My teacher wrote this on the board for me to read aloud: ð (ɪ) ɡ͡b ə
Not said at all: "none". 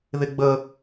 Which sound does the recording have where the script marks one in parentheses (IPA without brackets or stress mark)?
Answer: ɪ